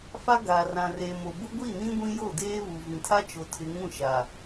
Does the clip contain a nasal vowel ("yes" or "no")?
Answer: yes